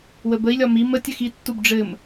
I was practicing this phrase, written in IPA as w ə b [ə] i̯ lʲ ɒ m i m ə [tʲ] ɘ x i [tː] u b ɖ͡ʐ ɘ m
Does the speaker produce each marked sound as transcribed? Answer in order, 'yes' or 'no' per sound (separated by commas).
yes, yes, yes